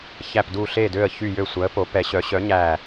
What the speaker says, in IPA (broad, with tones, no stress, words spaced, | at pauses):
çæ˨˩pdu˨˩ ɬe˨˩dø˨˩ə̯ çy˨˩jø˨˩ sʷæ˩˧ə̯po˩˧ pɛ˩˧ɕœ˩˧ ɕœ˩˧ɲæ˨˩